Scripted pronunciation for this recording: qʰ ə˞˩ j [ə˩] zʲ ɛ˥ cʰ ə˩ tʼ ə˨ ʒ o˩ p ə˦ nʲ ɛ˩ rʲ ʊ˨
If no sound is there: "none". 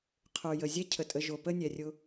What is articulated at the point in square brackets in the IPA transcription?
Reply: ə˩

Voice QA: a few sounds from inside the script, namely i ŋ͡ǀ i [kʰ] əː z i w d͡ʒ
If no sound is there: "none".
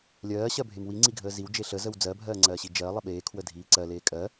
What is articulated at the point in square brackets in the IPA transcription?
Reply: ɡʱ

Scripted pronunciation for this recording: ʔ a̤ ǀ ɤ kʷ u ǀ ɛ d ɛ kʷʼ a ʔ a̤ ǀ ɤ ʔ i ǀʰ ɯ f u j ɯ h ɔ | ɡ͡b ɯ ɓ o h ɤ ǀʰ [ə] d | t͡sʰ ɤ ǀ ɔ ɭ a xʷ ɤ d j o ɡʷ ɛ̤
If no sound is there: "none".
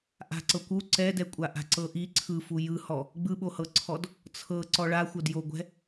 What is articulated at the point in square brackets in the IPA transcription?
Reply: ɔ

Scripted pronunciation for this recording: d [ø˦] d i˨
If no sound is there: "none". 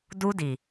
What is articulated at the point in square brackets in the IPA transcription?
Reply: u˦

